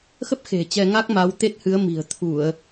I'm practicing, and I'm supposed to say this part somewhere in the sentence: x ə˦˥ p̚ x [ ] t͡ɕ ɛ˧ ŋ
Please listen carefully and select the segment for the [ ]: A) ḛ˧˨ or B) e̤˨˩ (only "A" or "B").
B